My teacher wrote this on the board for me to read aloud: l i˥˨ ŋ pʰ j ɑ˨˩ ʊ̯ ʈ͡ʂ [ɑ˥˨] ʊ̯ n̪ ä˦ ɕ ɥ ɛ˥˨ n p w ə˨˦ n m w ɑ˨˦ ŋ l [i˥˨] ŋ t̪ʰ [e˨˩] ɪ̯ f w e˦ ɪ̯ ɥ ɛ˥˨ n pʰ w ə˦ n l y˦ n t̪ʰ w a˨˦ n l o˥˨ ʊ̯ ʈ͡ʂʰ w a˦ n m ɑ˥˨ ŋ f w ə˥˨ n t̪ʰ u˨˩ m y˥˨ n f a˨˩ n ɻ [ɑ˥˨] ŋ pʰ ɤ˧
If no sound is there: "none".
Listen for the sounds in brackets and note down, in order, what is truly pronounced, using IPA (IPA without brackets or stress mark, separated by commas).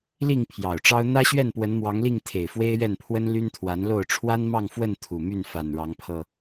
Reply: ɑ˦, i˥˨, e˨˩, ɑ˨˦